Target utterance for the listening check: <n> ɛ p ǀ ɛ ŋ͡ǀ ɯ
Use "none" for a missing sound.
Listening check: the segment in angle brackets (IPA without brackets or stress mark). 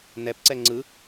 n